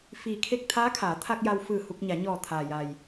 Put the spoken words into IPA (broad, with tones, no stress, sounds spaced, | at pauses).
f iː˩ kʰ e˧˩ k̚ t̪ʰ aː˧˥ kʰ aː˩˧ t̪ʰ a˧ k̚ j a˧ w f ɯː˧˩ h u˧ k̚ ɲ a˩˧ ɲ ɔː˧˩ t̪ʰ aː˩ j a˩ j